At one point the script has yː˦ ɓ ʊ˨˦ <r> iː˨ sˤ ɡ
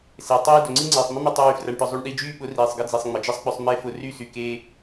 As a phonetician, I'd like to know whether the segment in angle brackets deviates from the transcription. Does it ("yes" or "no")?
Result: no